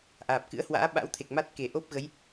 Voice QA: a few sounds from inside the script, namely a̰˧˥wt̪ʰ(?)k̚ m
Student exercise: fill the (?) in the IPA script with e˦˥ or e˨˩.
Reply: e˨˩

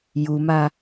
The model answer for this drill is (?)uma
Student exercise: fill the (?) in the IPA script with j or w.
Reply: j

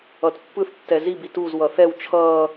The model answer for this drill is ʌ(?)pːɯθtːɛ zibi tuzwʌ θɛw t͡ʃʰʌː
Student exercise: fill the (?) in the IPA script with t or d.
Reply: t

